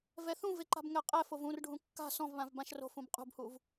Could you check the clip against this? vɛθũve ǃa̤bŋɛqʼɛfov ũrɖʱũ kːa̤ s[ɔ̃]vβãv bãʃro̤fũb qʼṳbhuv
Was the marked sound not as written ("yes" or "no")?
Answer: no